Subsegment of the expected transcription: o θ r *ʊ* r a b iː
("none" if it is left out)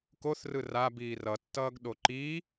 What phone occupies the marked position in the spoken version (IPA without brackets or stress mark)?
ɯ